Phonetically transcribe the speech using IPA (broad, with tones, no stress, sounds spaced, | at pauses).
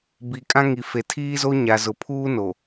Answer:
b i˨ kʼ ã˦ ŋ i˨ f e˨ tʰ iː˦ z o˦ ɲ a˨ z ʊ˨ pʰ uː˦ n o˨